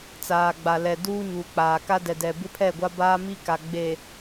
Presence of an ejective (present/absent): absent